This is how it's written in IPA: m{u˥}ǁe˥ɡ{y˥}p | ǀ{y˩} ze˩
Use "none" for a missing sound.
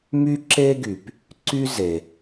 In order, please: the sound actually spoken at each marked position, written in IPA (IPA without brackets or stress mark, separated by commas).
y˥, y˩, y˥